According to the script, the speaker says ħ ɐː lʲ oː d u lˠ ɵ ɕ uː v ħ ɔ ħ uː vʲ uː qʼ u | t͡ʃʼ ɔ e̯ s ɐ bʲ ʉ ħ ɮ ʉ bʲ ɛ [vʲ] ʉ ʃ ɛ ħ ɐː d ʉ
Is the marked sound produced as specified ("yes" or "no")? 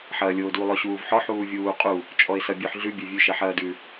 yes